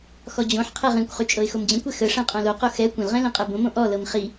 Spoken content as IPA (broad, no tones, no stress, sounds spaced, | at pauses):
x ɔ d͡ʑ õ ħ qʰ ɛ ʁ ĩ kʷ χ y t͡ʃʼ ɤ ɪ̯ x o m d͡ʑ ə̃ kʷ ɛ x ə ʂ ɛ̃ qʼ õ l o q o x ɛ kʷ ə̃ l ʁ ɛ̃ l ĩ qʼ ɛ b õ m õ ʔ ɔ l ɤ m χ i